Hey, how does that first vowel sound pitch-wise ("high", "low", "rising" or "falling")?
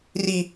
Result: low